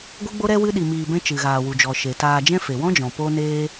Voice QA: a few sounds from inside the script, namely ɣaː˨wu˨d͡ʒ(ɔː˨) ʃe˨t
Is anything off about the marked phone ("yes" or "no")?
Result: yes